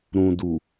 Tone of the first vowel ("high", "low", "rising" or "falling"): low